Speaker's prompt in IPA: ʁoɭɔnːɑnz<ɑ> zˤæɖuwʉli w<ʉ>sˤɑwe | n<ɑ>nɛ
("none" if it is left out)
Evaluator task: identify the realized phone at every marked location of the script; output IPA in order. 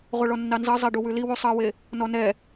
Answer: ɑ, u, ɔ

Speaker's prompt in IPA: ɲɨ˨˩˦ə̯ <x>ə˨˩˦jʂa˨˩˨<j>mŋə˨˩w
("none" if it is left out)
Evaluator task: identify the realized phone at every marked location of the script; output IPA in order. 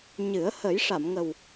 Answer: h, none

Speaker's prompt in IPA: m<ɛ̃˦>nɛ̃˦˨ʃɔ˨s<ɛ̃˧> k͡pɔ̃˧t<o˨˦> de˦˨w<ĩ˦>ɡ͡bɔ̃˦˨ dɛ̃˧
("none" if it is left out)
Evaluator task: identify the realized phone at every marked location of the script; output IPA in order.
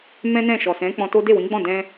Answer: ɛ̃˦, ɛ̃˨˦, o˦, ĩ˨˦

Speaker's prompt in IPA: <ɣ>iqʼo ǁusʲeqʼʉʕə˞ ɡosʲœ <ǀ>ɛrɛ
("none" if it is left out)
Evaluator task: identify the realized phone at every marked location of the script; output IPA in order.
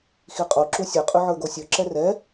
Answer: x, ǁ

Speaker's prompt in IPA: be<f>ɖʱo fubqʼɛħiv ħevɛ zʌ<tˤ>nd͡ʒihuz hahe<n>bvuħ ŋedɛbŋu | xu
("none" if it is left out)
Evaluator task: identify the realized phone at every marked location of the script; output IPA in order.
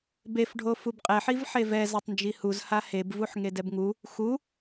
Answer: f, tˤ, none

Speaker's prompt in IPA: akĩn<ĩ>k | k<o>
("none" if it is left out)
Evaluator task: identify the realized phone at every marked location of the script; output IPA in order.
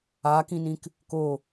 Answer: ĩ, o

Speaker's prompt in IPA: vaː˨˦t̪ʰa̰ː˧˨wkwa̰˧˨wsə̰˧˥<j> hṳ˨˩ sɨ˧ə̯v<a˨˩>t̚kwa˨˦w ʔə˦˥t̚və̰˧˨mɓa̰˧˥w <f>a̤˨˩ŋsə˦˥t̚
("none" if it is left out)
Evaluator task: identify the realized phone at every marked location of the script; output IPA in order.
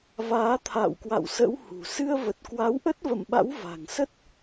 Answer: w, ə˨˩, v

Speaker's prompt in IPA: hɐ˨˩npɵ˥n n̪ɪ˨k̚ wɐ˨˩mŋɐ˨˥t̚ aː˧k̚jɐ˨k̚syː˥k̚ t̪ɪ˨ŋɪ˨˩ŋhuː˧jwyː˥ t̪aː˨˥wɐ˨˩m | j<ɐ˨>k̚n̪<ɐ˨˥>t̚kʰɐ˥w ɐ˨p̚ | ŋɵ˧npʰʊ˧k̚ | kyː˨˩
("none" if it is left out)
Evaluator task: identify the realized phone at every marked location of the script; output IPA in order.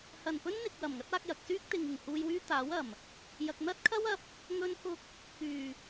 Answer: ɐ˨, ɐ˥

